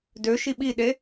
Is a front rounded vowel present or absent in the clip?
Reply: present